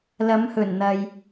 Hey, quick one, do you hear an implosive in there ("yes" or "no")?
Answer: no